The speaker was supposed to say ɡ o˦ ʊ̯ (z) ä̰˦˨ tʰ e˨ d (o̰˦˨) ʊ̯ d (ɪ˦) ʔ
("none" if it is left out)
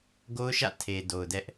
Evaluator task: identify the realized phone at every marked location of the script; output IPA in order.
ʃ, o˨, ɛ˦

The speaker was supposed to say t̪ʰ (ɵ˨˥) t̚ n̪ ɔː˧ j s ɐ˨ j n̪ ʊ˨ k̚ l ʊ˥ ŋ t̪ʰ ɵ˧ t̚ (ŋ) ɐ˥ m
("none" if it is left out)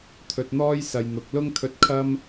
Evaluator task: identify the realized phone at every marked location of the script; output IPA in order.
ɵ˨, kʰ

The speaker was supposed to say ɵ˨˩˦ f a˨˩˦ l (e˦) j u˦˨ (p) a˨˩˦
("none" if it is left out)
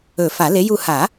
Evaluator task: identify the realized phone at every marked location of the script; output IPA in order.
e˨˥, h

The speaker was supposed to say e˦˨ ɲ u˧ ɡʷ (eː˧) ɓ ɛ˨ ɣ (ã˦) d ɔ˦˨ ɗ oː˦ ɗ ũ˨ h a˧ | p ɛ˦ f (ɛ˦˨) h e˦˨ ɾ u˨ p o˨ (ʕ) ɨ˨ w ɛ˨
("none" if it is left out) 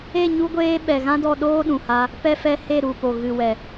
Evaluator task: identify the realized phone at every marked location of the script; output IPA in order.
eː˧, ã˦, ɛ˦, ɣ

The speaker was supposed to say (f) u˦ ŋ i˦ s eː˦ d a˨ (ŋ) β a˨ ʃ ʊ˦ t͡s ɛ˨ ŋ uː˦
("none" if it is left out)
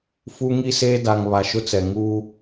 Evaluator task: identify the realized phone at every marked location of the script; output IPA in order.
f, ŋ

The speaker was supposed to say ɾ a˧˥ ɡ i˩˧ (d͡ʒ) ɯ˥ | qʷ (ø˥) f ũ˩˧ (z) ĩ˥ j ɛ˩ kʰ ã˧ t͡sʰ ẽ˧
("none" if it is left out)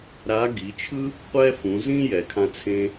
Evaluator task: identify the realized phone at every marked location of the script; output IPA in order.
t͡ʃʰ, ɛ˥, z

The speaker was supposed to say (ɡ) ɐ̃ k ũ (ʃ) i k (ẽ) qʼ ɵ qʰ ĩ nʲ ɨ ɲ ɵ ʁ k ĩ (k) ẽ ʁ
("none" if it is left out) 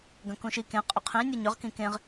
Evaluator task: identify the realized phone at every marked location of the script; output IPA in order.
ɡ, ʃ, ẽ, k

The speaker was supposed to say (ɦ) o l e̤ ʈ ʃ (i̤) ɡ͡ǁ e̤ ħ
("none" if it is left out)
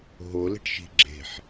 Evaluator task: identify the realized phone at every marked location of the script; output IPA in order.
ɦ, i̤

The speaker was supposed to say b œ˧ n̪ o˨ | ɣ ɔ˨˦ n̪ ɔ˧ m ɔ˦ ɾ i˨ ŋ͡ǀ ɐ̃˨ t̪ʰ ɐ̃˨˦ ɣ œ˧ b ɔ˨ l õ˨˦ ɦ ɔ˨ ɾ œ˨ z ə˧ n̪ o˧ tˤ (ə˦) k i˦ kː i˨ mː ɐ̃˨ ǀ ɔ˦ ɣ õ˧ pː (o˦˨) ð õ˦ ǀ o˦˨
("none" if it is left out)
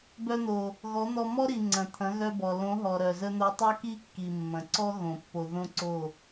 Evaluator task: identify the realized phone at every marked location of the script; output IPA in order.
œ˦, o˧

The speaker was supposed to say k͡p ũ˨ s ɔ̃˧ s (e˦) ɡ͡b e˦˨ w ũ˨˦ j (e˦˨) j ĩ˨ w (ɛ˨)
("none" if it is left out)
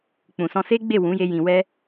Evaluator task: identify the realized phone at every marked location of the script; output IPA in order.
e˦, e˧, ɛ˧

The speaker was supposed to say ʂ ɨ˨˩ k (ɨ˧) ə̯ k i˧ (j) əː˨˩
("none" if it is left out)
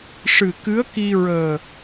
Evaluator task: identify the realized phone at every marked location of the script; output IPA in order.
ɨ˧˥, ɹ

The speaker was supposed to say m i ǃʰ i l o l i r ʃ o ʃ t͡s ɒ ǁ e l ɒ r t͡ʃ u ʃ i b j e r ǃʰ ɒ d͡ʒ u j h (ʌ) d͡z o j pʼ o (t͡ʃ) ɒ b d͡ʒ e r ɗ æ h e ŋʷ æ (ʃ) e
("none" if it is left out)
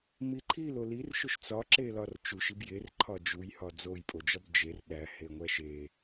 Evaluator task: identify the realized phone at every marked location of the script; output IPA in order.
ɒ, d͡ʒ, ʃ

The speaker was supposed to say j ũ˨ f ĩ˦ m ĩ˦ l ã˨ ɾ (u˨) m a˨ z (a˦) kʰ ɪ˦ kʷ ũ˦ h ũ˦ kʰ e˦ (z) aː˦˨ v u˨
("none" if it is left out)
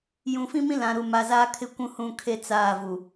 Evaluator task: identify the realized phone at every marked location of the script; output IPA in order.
u˨, aː˦, t͡s

